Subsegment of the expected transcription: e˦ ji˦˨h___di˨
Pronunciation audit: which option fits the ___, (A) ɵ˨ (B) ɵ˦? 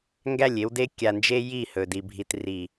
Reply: A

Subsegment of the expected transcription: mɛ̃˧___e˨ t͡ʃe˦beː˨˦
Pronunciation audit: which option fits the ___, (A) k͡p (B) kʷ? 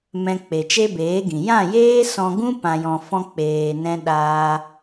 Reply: A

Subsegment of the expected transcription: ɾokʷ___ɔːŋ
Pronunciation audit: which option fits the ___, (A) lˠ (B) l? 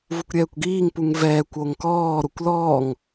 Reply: B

